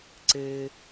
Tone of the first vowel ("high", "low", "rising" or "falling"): high